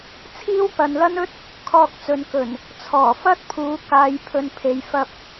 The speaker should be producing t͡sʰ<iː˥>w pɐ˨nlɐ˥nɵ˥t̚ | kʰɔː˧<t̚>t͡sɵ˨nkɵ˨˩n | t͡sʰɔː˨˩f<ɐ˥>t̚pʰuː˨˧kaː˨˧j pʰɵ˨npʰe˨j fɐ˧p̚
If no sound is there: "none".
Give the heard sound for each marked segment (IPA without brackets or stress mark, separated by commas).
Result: iː˥, k̚, ɐ˥